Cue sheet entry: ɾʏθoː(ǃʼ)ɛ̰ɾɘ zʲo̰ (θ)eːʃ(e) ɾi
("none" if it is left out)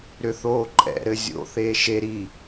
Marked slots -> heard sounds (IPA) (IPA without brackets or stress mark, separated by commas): ǃʼ, θ, e